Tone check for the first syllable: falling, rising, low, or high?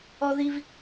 low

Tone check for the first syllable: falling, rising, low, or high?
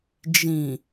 low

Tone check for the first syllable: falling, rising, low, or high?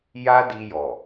high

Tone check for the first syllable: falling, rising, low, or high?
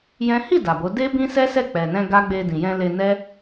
high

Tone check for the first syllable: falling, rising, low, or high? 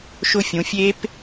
falling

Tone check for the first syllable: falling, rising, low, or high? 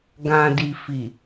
low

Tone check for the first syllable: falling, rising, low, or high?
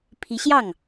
rising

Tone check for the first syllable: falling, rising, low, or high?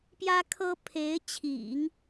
high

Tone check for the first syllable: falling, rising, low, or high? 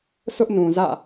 high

